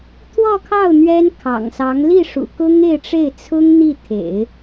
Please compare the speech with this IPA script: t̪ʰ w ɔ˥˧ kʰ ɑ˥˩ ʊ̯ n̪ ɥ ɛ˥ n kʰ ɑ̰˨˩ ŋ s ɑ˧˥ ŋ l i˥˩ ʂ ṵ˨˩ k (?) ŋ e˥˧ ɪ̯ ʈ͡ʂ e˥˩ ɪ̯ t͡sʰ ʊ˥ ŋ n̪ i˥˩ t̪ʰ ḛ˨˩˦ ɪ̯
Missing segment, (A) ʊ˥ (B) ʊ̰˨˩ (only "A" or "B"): A